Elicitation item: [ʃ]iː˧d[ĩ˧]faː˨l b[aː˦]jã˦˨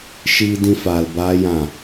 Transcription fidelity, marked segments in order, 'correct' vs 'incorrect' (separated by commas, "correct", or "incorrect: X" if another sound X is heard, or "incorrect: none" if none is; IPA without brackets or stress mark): correct, correct, correct